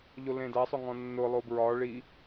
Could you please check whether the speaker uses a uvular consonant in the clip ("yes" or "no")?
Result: no